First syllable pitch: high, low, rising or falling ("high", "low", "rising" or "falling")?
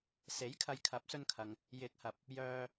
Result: rising